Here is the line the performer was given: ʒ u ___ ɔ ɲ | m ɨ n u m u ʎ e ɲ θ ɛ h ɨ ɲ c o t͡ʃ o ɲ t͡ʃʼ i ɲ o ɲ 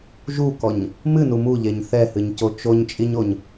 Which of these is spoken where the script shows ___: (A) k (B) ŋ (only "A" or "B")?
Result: A